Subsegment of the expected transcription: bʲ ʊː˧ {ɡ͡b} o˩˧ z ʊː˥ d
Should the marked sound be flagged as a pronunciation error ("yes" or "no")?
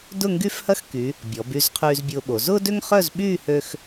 yes